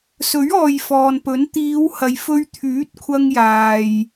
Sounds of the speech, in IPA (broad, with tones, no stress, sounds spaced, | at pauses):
s ɵ˨˥ ɥ ɔː˨ j f ɔː˨ n p ɵ˨˥ n t̪ iː˨˧ w h ɐ˧ j f ɵ˧ ɥ t̪ʰ yː˨˥ t̚ kʷʰ ɐ˧ ŋ j aː˨ j